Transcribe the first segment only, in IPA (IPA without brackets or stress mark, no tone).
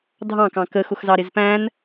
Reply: dʱ